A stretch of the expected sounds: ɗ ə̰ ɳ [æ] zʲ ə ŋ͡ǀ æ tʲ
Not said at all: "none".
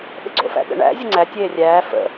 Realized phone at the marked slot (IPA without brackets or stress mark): æ̰